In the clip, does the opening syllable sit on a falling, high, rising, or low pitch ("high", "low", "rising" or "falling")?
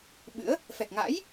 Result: rising